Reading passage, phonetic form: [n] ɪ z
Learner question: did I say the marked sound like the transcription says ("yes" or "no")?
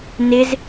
yes